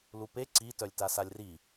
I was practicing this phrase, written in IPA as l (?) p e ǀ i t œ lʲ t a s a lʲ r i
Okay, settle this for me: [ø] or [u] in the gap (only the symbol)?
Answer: u